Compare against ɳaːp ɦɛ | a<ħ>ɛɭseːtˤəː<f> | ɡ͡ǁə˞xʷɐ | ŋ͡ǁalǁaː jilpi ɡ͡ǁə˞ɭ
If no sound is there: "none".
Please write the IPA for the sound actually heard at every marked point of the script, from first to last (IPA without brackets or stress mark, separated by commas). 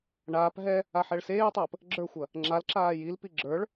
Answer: ħ, p